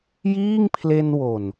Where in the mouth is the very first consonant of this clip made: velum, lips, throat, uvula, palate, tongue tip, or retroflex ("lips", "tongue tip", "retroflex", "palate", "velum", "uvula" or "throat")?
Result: palate